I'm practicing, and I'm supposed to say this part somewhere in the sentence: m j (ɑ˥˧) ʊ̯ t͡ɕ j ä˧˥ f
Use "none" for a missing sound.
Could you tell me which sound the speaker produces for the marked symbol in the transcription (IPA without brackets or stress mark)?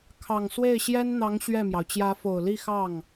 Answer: ɑ˩